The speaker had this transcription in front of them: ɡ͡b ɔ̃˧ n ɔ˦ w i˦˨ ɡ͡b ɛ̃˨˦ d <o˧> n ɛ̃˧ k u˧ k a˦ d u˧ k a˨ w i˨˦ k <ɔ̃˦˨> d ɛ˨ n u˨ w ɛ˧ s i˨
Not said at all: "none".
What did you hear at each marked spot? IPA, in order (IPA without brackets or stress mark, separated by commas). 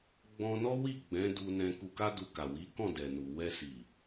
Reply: u˧, ɔ̃˦˨